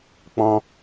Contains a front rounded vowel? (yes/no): no